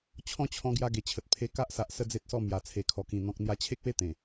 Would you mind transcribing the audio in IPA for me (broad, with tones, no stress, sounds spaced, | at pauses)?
t͡ɕʰ ɔ̃˥˧ t͡ɕʰ ɔ̃˧ ɡ j a˧ ɡ e˨˩ t͡ɕʰ ə˨ t̚ pʰ e˧ k a˦ ʔ s a˨ ʔ s ə˦ d͡z e˦ t̚ s ɔ˥˧ m j a˨˩ t͡sʰ e˨˩ kʰ ɔ˨˩ k ĩ˨˩ n̪ ɔ̃˨ k̚ n̪ j a˧ t͡ɕʰ e˦ k̚ w e˥˧ t̪ ẽ˨˩